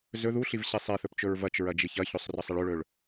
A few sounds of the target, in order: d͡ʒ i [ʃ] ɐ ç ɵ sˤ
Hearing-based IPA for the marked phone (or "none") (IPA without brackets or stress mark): ç